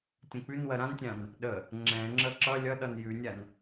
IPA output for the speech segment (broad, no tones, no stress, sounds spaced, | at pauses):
tʲ ə̃ k͡p ʉ n w ɜ ɾ ã n tʲ ã n | ɗ ə | ŋ͡ǁ ɛ̃ ŋ͡ǁ ə ǁ ʌ lʲ ʌ ɗ ʌ n j ʉ nʲ a n